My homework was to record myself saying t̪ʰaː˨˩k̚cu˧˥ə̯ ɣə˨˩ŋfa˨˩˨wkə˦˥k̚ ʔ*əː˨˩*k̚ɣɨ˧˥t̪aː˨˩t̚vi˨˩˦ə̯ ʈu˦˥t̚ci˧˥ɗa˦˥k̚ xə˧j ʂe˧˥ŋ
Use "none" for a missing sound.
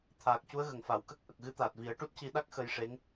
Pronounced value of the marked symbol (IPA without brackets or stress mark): ə˨˩